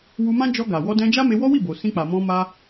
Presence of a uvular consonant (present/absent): absent